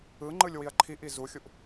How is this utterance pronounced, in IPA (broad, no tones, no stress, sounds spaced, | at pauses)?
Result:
ɯ ŋ͡ǃ ɯ lʲ w i ɐ̯ ǃʰ i ʔ i z u xʲ u ʔ